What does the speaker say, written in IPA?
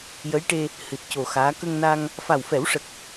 jə˧˥jʈe˧ | hɨ˨˩t̚co˨˩ xaː˧˥ kə˧ŋna˧ŋ | fa˨˩wfɛ˨˩˦wʂə˨˩k̚

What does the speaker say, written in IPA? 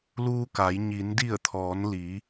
luː˧ka˩˧j ɲi˩˧n di˧˩ə̯t̪ʰɔː˩˧nliː˩˧

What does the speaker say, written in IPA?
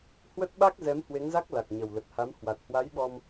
hwə˦˥t̚ɓa˦˥k̚ zɛ˨˦mhwe˨˦ŋza˦˥k̚ la˨˩k̚ɲə˨˩wlə˨˩t̚ha˨˦m hwa˨˩t̚hwa˨˦jɓɔ˧m

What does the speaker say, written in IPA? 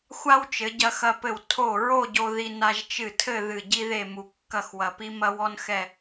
xʷa˥wt͡ʃɘ˩˧ ɟɐ˧xɐ˧pɘ˧˩w tʰo˧˩ ɹo˥˧ ɟo˧ ði˧ na˧ʒt͡ʃɨ˧˩tʰɘ˥˧ ðɨ˧˩ɟi˥ðe˥˧mu˧ kːɐ˥˧xwɐ˧pi˥ mɐ˥wɔ˥n xɛ˥˧

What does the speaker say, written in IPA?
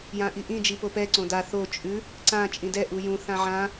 jãʔiʔĩ d͡ʒipopɛ ǀõda θo t͡ʃʼʉ | ǀã t͡ʃʼĩdɛ ʔujũ θãʕã

